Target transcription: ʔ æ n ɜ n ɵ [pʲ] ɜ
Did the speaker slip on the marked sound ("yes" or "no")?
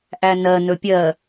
no